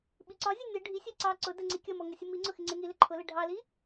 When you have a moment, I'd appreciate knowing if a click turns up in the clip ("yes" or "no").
yes